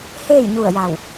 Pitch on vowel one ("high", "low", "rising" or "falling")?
falling